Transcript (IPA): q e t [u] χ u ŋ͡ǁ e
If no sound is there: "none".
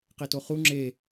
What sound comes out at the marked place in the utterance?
o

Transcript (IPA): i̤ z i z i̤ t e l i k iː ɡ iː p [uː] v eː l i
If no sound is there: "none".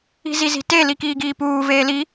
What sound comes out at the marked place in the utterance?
uː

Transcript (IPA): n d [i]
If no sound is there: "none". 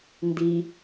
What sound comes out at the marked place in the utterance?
i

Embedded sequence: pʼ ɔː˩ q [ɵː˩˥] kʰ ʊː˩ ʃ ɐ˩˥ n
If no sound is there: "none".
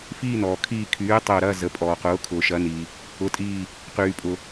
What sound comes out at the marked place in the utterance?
ʊː˩˥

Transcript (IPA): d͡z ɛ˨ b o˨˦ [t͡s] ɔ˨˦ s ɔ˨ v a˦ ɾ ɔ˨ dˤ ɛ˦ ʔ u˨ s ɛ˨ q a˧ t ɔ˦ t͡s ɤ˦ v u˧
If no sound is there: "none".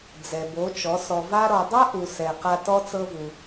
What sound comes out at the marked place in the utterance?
t͡ʃ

